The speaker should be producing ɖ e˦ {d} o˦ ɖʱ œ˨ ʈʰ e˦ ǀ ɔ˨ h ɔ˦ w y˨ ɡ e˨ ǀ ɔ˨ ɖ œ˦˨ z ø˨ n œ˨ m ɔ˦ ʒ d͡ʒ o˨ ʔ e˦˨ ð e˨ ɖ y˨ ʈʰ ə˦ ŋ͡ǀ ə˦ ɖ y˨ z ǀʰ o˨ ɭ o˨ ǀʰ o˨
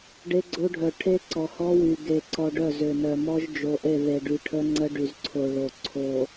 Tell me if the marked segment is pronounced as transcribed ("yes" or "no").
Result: no